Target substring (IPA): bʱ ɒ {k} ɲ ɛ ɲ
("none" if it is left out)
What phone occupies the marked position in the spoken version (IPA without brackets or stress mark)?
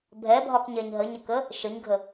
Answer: k